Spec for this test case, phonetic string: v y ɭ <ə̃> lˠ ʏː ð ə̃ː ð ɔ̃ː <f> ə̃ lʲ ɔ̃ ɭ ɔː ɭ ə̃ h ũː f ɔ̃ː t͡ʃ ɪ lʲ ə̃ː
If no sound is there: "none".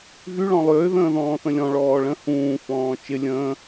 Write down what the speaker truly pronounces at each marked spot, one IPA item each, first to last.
ɔ̃, θ

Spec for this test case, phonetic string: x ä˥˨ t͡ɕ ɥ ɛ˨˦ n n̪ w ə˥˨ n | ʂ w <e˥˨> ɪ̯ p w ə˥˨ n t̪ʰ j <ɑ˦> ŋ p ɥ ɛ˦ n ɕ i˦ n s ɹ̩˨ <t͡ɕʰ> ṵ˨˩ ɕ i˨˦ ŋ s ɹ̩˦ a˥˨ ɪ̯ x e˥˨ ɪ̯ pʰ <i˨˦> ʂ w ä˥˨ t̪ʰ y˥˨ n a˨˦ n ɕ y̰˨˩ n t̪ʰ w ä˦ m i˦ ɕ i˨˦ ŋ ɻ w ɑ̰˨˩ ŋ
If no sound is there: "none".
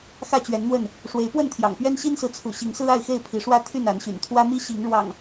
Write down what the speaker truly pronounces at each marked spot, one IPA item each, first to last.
e˨˦, ɑ̰˨˩, t͡sʰ, i˨˦

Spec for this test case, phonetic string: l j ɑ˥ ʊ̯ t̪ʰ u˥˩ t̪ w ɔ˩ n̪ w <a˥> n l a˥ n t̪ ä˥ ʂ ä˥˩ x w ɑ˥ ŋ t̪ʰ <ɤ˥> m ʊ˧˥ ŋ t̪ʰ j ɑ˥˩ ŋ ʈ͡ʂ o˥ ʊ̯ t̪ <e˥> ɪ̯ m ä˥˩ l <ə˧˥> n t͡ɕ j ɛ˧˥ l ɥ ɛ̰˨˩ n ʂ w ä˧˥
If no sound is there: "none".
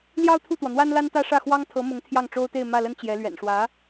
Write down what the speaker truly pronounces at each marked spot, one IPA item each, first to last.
a˥, ɤ˧˥, e˥˧, ə˥

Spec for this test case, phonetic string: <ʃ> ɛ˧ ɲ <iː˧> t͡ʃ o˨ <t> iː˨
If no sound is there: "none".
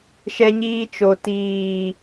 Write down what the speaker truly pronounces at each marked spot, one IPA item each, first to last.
ʃ, iː˧, t

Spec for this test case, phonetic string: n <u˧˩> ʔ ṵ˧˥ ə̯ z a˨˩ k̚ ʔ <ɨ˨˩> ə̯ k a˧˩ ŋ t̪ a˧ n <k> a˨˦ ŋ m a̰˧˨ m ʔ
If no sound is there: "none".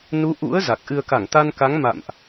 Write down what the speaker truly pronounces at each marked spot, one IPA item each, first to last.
u˨˦, ɨ˨˩, k

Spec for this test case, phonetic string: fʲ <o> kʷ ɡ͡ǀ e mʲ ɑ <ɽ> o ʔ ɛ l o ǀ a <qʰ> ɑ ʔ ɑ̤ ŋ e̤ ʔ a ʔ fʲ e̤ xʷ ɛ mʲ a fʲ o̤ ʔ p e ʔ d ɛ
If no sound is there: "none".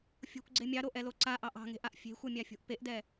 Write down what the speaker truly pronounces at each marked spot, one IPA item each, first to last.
o̤, ɾ, ʔ

